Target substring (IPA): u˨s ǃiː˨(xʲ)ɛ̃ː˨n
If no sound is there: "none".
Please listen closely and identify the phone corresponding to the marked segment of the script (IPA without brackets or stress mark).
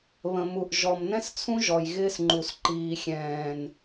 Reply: xʲ